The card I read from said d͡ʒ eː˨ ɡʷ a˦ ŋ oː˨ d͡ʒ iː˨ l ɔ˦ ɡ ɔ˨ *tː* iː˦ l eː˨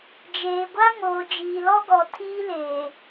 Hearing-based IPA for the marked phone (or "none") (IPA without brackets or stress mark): tʰ